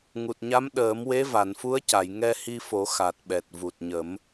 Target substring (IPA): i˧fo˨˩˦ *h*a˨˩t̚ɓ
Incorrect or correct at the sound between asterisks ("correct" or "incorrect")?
incorrect